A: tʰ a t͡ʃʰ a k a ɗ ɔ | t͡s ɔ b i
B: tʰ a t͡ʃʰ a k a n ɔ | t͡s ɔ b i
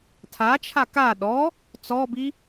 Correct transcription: A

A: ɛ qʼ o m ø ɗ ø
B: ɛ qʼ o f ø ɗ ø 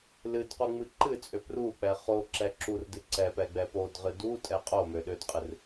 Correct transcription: A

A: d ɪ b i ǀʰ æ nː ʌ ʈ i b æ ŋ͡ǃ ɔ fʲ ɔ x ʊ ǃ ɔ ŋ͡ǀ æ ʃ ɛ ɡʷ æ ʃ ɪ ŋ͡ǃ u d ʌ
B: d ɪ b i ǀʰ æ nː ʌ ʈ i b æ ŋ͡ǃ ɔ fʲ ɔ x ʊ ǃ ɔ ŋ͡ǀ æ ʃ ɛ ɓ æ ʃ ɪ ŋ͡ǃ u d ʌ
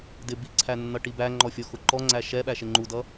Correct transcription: B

